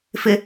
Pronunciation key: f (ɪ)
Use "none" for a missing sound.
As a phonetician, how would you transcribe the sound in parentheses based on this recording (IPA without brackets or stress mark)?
ɪ